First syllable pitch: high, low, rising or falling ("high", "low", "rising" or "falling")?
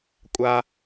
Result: high